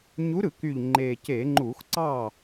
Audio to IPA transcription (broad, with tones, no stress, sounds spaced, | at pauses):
ɲ u˨˦ ɾ ɯ˧˩˧ k y˨˩ ʎ ŋ͡ǃ e˨˩ c e˧˩˧ ŋ͡ǃ u˧˩˧ x ǀ ɑ˥˩